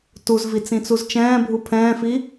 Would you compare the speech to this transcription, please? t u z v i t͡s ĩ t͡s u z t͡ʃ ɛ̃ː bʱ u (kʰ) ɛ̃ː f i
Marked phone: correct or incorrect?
incorrect